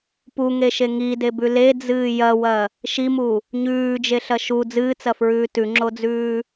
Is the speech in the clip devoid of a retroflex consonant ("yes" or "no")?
yes